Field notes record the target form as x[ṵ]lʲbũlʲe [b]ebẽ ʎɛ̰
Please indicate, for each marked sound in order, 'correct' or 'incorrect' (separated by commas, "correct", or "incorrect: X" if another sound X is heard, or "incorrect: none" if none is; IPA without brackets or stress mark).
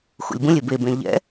correct, correct